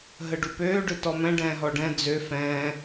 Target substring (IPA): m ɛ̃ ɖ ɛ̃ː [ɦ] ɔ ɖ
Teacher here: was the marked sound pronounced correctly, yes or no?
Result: yes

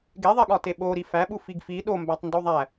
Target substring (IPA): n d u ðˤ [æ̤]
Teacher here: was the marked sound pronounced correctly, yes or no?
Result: no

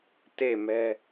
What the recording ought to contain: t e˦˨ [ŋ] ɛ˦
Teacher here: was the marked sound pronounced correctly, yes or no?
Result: no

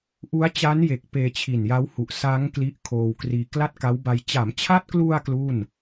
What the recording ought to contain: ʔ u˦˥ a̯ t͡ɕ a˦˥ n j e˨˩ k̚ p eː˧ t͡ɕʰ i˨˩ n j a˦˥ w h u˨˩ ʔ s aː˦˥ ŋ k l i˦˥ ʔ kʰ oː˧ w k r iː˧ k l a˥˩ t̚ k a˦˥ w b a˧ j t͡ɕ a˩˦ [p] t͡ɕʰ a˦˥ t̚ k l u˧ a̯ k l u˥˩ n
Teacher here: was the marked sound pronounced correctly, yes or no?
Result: no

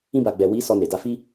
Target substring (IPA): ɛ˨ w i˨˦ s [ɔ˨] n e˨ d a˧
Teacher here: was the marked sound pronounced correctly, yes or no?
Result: no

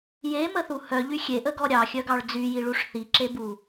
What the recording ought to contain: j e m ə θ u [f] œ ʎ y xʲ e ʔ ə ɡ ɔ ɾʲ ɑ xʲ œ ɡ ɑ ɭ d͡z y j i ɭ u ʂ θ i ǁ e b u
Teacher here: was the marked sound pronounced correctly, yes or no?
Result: no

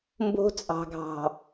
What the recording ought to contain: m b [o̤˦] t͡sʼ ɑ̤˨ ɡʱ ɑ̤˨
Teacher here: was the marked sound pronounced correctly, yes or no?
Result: yes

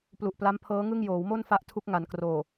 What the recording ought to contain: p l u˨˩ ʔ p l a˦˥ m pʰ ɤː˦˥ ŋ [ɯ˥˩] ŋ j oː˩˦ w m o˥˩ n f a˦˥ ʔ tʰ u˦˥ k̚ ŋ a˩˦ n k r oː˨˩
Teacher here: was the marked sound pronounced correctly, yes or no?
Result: yes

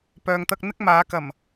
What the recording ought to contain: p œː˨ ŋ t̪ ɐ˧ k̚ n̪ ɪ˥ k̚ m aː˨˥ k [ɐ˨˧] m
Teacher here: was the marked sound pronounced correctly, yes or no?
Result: no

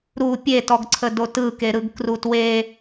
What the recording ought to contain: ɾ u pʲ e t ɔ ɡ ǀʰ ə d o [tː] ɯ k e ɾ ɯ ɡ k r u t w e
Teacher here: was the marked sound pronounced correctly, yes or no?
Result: no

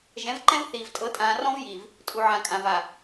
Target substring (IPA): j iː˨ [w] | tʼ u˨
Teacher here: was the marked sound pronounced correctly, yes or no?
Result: no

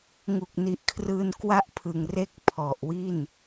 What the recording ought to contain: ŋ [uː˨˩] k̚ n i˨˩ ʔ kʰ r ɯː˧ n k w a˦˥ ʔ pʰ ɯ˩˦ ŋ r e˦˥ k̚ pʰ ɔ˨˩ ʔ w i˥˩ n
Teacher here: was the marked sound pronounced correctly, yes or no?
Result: no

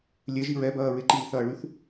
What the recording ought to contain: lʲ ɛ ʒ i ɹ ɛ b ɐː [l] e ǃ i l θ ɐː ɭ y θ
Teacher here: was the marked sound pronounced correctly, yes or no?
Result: no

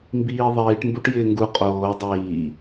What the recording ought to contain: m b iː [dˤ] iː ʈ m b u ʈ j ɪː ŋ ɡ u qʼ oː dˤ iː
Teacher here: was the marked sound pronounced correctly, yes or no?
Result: no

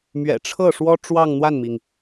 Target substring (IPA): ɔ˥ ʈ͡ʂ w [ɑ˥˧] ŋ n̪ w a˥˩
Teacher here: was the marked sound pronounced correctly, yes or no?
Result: yes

